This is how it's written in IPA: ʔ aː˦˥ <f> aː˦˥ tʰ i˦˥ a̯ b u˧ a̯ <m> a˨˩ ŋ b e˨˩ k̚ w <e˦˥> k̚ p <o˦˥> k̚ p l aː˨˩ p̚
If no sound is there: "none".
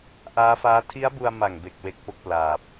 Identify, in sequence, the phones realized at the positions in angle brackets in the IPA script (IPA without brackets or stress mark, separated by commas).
f, m, e˦˥, o˦˥